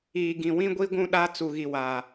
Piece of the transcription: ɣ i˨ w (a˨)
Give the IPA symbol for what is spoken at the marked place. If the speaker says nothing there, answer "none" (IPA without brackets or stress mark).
aː˨